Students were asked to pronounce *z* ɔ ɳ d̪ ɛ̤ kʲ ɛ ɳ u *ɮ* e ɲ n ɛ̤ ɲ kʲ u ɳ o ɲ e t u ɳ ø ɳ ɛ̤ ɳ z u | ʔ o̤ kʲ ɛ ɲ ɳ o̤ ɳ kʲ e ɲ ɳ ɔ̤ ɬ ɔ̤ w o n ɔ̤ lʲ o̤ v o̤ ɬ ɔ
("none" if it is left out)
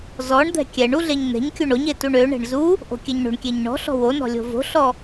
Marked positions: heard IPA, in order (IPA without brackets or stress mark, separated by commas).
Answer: z, ɮ